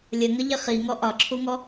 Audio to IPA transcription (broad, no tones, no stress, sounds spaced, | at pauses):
lʲ ə ŋ ə ʎ ɪ χ i ŋ ɔ ʔ ɒ ǁʰ u ŋ ɔ